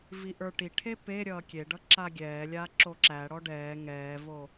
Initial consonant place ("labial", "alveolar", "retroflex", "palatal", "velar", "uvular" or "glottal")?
labial